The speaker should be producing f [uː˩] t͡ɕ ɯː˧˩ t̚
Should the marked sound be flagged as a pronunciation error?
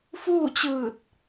yes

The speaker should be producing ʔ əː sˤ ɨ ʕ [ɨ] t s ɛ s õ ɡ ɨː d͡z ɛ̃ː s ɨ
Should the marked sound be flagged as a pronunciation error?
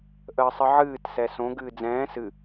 yes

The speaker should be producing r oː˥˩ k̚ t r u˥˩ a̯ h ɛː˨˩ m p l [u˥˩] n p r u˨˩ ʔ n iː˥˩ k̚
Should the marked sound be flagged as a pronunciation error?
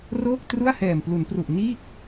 yes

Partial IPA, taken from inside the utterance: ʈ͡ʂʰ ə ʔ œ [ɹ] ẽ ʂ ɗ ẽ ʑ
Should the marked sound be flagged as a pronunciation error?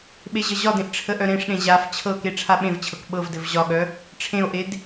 yes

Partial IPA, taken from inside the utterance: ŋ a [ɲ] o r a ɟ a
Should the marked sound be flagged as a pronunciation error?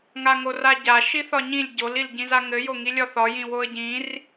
yes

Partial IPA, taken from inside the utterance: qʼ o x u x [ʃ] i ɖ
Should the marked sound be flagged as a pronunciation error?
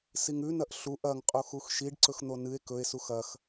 no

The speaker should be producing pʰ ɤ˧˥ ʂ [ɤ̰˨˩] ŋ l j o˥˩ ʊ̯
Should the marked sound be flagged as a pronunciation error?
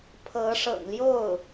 no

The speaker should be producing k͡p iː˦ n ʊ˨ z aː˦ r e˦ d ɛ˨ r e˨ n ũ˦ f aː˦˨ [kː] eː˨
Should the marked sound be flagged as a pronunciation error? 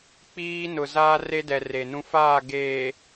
yes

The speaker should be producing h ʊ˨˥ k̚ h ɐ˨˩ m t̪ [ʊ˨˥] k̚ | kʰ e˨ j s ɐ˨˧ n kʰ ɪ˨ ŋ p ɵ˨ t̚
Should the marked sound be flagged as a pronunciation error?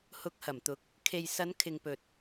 no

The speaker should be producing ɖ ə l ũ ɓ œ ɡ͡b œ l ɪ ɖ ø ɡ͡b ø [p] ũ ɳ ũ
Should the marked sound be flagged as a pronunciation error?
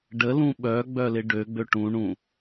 yes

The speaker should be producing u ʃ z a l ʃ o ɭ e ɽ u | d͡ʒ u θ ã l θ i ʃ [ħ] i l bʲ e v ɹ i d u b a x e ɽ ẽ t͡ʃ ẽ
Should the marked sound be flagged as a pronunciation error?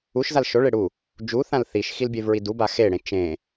yes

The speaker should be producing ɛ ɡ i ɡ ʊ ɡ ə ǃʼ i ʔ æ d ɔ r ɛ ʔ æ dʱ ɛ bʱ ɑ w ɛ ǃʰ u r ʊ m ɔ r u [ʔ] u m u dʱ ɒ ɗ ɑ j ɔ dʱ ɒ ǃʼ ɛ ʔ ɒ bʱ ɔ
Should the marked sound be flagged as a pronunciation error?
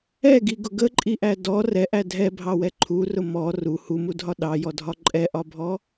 yes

